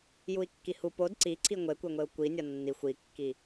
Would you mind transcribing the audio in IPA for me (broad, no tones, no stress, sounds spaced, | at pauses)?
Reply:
j u i̯ kː i h u p o d ǀ i ǀʰ i ŋʷ e kʷ e ŋʷ e u̯ kʷ i nʲ ɒ nː i xʷ i kː i